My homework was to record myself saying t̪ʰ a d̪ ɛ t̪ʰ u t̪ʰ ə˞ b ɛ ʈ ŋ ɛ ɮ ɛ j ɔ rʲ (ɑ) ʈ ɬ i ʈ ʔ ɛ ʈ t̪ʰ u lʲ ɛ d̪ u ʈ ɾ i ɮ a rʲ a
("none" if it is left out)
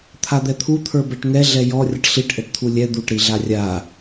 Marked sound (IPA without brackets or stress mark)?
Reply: ʌ